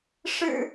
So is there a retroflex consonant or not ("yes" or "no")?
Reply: yes